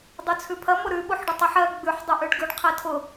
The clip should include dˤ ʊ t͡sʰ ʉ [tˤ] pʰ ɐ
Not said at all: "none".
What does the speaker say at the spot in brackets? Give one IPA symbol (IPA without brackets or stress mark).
none